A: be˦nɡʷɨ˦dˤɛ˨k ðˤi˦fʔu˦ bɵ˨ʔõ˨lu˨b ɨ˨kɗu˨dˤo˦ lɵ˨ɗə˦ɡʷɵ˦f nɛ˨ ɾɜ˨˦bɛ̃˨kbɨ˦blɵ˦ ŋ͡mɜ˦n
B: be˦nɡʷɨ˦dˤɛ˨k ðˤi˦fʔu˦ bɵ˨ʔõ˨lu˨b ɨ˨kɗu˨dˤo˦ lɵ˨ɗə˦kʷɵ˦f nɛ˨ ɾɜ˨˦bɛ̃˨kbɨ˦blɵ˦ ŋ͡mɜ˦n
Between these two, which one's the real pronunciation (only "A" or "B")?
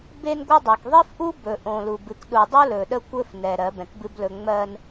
B